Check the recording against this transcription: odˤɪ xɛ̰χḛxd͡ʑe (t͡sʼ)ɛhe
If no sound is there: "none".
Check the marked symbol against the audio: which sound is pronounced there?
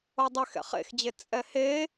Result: t͡sʼ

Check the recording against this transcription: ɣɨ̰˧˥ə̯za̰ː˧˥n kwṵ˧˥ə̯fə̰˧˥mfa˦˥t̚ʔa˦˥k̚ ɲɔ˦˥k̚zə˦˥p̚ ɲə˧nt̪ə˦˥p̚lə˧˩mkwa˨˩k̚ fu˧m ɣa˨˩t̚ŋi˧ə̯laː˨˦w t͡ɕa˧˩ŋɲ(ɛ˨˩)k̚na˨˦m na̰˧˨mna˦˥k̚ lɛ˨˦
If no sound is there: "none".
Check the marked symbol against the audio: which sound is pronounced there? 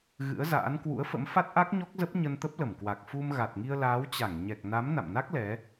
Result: ɛ˨˩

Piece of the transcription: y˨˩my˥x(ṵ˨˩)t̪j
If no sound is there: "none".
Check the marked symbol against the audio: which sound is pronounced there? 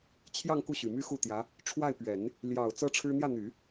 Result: u˥˩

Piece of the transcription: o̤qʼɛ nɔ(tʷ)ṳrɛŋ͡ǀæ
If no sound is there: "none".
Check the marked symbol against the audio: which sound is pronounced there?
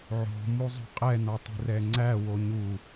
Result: tˤ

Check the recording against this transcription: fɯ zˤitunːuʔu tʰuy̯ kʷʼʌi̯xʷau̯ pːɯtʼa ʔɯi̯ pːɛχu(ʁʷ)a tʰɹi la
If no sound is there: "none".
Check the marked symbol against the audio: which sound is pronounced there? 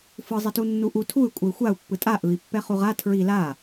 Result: ʁ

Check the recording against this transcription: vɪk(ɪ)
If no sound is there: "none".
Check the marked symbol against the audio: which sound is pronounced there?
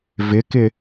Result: ɪ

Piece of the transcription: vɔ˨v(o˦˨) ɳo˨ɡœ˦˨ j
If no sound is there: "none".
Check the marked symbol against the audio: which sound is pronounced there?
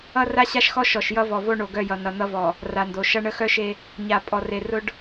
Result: o˦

